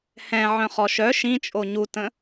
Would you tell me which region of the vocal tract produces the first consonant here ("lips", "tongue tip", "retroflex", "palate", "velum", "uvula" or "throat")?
throat